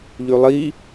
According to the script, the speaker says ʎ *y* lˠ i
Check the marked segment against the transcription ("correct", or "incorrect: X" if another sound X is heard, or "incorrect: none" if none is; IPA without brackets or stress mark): correct